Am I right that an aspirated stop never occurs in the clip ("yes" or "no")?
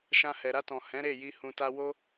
yes